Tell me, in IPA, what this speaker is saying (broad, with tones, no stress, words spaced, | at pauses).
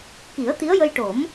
ki˨˩˦ə̯t̪i˧˥ə̯jə˧jʈo˨˩˦m